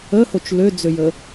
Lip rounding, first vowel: unrounded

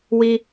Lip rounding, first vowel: unrounded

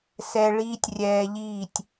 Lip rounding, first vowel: unrounded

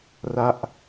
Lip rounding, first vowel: unrounded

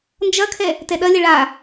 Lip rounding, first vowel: unrounded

